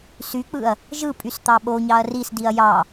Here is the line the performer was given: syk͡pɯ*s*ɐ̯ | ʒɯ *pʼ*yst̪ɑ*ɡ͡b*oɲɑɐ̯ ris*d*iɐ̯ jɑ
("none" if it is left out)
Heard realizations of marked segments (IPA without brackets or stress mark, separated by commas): none, pʼ, ɓ, d